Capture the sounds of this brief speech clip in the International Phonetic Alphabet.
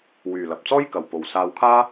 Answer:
w yː˨ l ɐ˨ p̚ t͡s ɔː˥ j k ɐ˨ w p o˨ w s aː˧ w kʰ aː˥

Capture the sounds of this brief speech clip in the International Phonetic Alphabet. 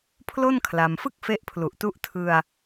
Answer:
pʰ l o˥˩ n kʰ l a˧ m f ɯ˥˩ k̚ f e˦˥ ʔ pʰ l u˨˩ ʔ t u˦˥ ʔ tʰ ɯ˧ a̯

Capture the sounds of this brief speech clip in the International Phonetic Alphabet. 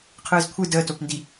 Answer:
qʰ ɯː z kʷʰ ɨ d əː t o p n d i

